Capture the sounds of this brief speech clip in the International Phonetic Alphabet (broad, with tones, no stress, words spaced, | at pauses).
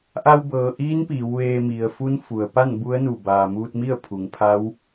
ʔa˧wbɤː˩ʔiː˧˥n piː˩˧wʋeː˧ mi˩ə̯fu˧˥nfu˩ə̯pa˥˨n bu˧˥ə̯nu˧˩ baː˩muː˧t̚mi˥˨ə̯ pʰu˩ŋpʰa˧˥w